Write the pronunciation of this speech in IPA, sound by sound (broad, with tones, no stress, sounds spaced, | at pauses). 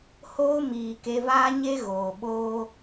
h oː˧ m iː˨ k e˧ v aː˦ ɲ e˦ ɣ oː˨ ɓ oː˧